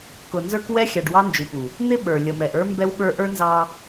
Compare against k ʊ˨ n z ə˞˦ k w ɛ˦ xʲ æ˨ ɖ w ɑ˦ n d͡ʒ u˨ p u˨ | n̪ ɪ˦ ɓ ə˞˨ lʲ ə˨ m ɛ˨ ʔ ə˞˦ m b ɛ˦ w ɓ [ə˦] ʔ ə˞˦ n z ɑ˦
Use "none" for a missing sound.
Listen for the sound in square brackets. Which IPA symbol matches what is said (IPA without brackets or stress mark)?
ə˞˦